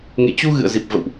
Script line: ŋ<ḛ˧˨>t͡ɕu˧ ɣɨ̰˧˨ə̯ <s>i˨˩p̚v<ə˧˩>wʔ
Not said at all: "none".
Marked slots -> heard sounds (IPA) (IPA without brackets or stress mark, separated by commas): ḛ˧˨, z, ə̰˧˨